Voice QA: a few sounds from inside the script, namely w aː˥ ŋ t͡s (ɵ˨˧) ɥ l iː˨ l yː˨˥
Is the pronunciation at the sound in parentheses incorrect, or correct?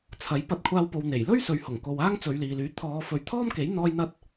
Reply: correct